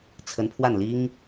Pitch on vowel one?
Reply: rising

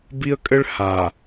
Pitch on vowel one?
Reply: high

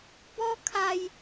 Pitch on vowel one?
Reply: high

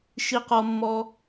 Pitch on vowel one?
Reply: high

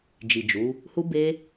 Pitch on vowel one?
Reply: low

